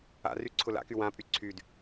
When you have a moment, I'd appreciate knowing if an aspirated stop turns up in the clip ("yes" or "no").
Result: yes